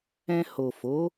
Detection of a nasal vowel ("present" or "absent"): present